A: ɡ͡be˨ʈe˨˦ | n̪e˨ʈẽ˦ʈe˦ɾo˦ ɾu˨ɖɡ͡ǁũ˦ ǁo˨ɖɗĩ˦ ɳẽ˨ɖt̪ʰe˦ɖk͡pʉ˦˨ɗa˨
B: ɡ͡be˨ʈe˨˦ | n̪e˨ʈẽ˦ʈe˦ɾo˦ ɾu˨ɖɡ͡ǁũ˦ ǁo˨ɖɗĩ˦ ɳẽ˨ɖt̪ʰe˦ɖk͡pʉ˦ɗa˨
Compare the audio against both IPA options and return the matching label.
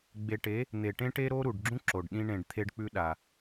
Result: B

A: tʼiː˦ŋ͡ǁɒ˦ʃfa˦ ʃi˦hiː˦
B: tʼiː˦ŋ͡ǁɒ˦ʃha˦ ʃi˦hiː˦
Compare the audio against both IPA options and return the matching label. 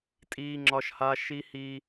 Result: B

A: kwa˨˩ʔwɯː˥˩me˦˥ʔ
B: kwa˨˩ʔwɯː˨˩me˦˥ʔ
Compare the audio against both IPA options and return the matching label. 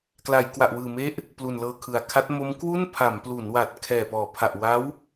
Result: B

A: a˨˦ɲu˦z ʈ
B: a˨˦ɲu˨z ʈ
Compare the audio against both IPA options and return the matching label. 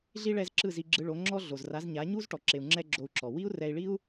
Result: A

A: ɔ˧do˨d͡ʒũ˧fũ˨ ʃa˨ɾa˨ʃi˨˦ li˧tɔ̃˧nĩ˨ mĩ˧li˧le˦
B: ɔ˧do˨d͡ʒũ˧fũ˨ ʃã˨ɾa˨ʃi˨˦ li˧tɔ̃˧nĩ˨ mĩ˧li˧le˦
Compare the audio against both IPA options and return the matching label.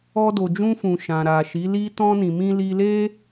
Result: B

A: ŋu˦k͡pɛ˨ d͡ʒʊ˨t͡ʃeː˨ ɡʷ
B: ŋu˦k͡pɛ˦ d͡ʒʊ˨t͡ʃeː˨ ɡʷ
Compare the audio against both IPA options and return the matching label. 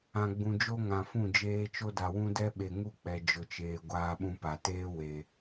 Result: A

